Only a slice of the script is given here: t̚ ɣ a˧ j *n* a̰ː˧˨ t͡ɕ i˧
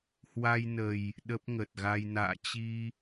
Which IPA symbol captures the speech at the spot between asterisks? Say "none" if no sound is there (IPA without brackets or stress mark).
n